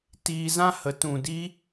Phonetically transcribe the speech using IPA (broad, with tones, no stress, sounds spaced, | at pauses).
t iː˧ z ã˦ h ə˨˦ t ũ˨ d i˧